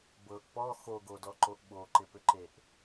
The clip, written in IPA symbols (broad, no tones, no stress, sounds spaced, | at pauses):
b ɤ ʔ p ɔ x o ɡ o d ɔ ǃ o ʔ ɓ o ǃ ɪ p ʏ ǃ e ʔ